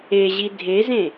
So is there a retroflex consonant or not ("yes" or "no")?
no